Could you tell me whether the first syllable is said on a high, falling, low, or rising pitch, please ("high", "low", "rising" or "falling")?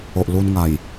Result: low